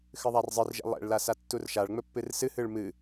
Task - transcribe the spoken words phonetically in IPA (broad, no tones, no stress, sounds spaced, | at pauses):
x ɨ ðˤ a r zˤ ɨ r ʒ ɛ̰ lˠ ɛ̰ ɭ l a s a tː u r ʃ a ɭ ŋ͡m ɵ pː ɨ r s ɨ h ɨ ɭ m ɨ